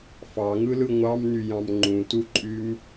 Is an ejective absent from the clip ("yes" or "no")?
no